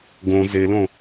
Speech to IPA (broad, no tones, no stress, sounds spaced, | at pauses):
ɡ õ z e l õ